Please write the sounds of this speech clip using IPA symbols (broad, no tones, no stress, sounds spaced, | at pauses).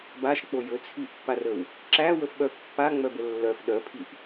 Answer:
b a ʃ k͡p o j ɵ t͡sʰ i ʔ pː a r ə w | ǁ æ w ə f ɓ œ pː a ŋ͡m œ b ə lː œ f ɗ œ pʰ i ʔ